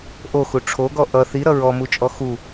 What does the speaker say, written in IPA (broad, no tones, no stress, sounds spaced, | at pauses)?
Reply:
ʔ o x u ʈ͡ʂʰ o ɡ ɔ ʔ ʌ θ i ɾ ʌ ɹ ɔ m u t͡ʃʼ ɔ x u